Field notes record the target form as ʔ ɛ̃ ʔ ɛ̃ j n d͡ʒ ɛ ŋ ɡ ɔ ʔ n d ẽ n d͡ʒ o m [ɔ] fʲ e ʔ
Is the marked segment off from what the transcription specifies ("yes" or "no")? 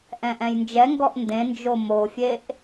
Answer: yes